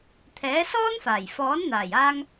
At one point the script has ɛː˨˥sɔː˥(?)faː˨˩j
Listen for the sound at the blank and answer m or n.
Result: n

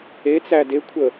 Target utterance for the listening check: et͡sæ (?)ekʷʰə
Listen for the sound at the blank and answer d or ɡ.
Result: d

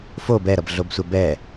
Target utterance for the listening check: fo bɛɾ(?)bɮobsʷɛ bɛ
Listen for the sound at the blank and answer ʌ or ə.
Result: ʌ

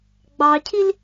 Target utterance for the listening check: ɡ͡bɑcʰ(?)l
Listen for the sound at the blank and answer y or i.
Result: i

